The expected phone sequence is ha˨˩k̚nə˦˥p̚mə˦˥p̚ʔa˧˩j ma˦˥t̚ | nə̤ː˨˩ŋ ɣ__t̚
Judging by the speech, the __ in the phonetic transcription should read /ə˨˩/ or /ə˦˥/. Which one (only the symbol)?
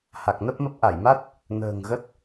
ə˦˥